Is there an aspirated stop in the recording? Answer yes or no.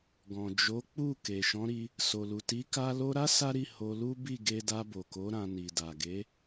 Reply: no